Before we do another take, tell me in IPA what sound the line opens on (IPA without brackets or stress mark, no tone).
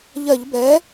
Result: ʎ